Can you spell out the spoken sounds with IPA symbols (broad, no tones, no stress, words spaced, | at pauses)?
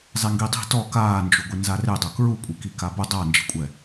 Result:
zˤeŋɡidˤi̤ tɔ kaːnd͡ʒuɡʷɪ nzaredˤo kɹukʷʼi kikabʊ dˤa nd͡ʒi̤kʷʼɛ